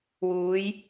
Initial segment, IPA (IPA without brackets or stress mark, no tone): w